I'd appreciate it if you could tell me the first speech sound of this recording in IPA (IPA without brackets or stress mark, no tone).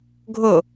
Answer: ɡʱ